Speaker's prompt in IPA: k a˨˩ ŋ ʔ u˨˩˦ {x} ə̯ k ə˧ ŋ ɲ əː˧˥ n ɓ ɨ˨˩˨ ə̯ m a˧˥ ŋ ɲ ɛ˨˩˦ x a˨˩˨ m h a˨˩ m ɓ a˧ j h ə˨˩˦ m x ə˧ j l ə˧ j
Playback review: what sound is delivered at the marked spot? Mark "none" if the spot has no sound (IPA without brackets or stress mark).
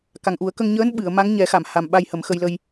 none